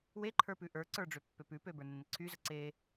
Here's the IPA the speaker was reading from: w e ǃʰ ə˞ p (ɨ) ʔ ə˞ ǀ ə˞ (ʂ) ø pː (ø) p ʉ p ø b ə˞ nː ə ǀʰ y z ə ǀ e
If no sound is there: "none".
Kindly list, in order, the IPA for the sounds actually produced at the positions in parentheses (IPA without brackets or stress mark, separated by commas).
ʉ, ɖ͡ʐ, ø